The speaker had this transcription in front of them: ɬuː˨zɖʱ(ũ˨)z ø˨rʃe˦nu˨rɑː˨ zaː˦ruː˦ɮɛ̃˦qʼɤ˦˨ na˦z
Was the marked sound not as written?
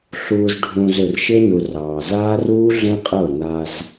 no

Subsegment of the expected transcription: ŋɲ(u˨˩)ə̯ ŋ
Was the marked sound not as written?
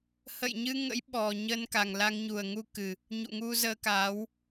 no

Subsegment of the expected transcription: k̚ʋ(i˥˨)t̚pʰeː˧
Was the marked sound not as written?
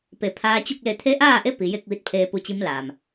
yes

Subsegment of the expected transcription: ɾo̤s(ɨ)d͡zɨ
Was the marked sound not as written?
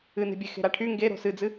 no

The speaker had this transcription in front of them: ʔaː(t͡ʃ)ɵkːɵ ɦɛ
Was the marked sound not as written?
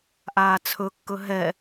yes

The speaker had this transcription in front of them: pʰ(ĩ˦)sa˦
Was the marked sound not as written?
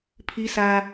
yes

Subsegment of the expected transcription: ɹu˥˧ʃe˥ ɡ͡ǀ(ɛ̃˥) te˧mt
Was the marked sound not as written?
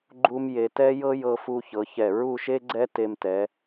yes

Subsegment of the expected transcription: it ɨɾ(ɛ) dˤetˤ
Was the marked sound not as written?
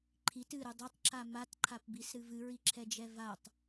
yes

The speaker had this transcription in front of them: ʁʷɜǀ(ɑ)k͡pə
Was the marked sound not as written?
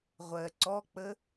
yes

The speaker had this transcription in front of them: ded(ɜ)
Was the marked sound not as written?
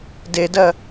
no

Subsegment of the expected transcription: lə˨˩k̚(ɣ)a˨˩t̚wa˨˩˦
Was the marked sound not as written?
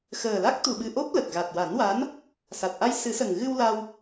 no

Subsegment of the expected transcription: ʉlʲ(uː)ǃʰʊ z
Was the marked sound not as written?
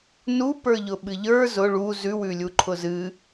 yes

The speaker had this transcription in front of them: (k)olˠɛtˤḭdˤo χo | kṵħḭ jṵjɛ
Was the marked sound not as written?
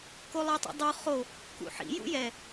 no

